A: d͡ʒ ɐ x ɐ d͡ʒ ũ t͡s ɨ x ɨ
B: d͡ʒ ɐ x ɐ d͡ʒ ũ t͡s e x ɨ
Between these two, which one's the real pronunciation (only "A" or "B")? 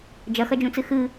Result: A